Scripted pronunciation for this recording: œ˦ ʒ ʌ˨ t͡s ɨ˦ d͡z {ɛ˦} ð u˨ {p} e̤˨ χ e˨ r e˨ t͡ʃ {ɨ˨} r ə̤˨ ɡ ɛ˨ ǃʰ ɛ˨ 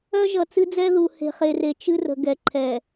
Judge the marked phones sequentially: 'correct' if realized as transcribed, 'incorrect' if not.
correct, incorrect: h, incorrect: ɨ˦

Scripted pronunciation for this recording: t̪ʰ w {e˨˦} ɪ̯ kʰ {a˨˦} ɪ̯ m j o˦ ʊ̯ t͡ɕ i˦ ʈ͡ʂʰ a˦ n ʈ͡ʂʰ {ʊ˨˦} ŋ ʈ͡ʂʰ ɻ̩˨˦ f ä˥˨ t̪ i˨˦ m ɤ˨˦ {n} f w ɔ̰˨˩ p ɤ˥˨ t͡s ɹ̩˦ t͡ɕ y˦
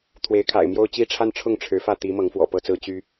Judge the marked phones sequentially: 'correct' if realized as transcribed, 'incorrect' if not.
correct, incorrect: a̰˨˩, incorrect: ʊ˥˨, incorrect: ŋ

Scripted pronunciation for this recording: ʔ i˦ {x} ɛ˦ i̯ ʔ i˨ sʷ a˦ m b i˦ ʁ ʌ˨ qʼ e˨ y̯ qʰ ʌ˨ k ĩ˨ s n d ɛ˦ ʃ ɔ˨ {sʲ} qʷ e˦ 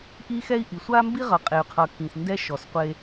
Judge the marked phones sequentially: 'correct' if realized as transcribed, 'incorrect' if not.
correct, incorrect: s

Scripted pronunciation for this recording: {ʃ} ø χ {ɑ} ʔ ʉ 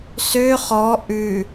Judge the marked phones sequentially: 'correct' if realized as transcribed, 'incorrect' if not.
incorrect: s, incorrect: ɔ

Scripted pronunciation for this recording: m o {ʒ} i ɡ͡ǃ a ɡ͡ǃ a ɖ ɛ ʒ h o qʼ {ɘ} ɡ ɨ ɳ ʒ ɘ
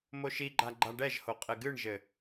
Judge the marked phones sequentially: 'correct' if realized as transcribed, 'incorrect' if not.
incorrect: ʃ, correct

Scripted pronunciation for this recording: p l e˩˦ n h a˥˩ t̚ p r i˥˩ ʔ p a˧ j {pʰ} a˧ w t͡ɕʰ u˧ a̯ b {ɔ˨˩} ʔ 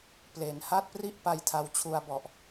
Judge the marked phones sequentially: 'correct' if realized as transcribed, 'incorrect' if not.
incorrect: tʰ, correct

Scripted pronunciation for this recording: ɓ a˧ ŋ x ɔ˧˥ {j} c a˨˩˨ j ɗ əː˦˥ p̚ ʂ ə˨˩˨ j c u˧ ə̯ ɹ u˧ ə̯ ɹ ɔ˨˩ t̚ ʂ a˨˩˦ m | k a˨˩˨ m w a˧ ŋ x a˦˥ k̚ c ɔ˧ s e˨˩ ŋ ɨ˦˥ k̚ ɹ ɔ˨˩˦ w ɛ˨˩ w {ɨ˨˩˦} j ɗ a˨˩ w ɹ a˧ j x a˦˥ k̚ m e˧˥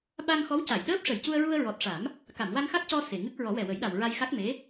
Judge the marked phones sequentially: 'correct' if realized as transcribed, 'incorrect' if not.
incorrect: w, incorrect: ə˨˩˦

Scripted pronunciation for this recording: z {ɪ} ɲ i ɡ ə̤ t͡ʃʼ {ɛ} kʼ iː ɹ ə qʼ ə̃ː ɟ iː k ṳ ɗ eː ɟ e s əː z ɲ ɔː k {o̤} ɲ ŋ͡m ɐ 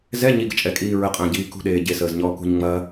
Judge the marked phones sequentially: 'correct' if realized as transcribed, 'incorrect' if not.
incorrect: ɛ, correct, incorrect: ṳ

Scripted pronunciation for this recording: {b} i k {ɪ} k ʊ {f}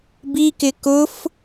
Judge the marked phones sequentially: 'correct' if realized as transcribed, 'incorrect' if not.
correct, correct, correct

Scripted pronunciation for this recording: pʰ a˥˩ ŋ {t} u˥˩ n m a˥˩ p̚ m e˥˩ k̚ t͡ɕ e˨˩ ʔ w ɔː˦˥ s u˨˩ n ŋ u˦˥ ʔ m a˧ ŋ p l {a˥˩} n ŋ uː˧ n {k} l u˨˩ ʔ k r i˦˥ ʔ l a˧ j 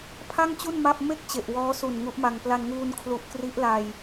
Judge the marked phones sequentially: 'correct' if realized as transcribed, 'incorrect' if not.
incorrect: t͡ɕ, incorrect: a˧, incorrect: kʰ

